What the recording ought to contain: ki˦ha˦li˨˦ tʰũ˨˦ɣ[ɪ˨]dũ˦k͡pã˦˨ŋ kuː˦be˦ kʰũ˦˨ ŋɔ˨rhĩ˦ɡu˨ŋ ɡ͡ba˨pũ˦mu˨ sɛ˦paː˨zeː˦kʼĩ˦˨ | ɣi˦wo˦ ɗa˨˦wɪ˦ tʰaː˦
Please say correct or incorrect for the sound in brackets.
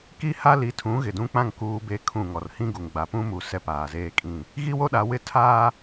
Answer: correct